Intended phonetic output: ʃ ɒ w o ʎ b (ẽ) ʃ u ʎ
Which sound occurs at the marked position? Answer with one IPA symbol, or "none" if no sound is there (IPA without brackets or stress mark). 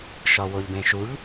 ẽ